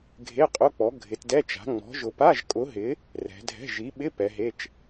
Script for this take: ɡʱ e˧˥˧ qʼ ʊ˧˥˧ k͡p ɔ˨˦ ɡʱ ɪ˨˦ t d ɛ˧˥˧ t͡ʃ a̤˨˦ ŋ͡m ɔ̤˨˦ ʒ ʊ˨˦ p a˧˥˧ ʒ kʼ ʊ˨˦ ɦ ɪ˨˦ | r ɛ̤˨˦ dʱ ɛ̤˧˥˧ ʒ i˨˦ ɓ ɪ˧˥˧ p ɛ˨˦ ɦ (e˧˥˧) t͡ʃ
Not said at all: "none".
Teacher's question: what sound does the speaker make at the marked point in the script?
e˧˥˧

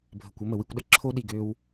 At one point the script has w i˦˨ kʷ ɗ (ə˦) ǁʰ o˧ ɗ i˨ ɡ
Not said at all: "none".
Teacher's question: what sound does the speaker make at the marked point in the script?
ə˦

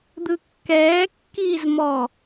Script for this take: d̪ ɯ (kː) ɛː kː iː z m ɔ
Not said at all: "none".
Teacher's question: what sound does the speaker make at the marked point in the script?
kː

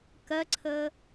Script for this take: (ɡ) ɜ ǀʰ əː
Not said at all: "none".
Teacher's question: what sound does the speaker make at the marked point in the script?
k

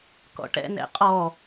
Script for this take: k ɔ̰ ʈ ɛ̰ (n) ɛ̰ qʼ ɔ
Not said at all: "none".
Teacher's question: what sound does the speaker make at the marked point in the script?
n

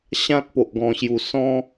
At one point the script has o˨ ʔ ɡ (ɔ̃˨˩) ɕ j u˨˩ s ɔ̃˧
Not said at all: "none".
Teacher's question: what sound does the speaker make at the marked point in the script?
ɔ̃˨˩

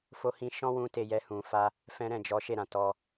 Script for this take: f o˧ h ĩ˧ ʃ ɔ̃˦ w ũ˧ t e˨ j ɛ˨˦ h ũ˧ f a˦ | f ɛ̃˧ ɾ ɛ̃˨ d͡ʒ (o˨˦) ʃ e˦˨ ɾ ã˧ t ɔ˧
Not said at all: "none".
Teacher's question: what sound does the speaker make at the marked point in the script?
ɔ˨˦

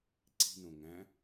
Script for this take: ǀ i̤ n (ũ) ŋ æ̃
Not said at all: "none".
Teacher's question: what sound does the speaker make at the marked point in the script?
õ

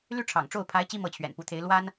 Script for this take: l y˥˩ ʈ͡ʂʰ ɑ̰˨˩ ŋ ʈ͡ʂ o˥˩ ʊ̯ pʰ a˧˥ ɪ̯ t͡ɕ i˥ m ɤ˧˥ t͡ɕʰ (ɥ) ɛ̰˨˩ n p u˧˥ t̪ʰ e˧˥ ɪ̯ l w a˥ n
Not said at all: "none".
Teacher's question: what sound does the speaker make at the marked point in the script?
ɥ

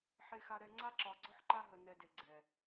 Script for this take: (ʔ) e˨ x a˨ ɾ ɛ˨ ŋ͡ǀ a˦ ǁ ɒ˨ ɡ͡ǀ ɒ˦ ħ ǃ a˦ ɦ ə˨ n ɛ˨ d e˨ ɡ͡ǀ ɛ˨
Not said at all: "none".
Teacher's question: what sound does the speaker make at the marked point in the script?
ħ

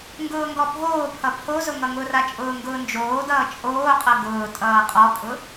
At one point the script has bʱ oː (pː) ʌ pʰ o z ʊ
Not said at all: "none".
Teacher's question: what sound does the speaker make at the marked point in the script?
pʰ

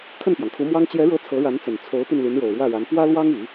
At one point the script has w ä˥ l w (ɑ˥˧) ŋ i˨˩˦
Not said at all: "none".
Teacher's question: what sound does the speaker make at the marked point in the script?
ɑ˥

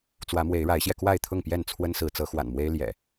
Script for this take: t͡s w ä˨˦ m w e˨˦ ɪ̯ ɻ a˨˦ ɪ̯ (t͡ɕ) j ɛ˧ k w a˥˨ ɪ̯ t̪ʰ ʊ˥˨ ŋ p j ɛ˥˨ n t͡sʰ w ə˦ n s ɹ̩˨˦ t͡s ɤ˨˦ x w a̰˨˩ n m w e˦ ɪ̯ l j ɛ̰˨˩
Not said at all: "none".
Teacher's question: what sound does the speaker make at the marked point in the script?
ɕ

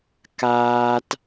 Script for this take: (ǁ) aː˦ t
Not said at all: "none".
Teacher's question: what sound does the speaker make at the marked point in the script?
k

